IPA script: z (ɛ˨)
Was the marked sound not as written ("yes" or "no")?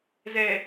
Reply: no